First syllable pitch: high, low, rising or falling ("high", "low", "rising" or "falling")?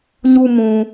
high